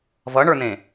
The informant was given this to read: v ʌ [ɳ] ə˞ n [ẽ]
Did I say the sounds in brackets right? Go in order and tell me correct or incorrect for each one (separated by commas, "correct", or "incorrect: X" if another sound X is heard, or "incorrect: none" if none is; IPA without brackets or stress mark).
correct, correct